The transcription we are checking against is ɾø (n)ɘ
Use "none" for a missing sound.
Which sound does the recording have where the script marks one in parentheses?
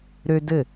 d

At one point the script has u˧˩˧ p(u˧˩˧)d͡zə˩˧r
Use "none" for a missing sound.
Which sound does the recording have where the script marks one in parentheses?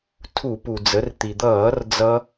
u˩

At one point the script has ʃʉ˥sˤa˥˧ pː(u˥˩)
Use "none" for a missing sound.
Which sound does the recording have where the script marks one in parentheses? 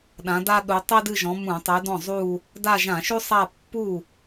u˥˩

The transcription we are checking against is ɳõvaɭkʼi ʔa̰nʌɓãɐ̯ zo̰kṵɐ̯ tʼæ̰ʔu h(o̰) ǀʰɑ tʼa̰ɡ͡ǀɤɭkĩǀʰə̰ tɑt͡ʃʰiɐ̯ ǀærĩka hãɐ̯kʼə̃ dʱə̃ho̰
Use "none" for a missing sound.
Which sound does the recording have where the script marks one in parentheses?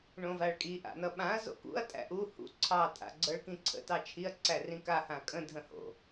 ṵ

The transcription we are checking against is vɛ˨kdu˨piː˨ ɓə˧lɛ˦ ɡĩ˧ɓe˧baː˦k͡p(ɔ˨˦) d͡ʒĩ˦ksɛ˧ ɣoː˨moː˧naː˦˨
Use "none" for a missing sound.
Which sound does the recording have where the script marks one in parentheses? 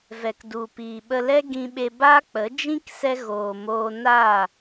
ə˨˦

